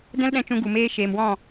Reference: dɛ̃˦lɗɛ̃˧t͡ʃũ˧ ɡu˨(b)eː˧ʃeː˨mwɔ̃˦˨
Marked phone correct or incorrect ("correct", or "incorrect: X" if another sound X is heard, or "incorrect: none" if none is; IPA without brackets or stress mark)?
incorrect: m